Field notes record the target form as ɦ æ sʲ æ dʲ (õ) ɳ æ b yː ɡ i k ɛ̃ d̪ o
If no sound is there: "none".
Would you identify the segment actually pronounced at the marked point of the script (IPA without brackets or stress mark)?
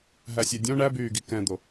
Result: õ